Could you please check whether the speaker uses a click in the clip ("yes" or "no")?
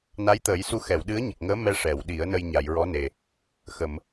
no